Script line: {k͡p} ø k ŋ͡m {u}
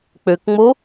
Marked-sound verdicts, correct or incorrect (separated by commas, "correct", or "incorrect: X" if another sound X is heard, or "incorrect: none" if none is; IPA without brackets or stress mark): correct, incorrect: o